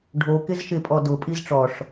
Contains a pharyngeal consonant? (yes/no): no